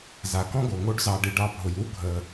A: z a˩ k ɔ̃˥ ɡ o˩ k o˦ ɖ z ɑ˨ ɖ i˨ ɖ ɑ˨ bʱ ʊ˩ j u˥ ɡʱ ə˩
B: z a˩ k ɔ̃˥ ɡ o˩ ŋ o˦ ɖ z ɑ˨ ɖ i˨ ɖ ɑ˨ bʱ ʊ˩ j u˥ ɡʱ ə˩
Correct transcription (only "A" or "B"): B